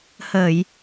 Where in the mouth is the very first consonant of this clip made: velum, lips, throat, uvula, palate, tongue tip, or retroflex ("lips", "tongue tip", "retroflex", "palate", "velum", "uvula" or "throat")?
throat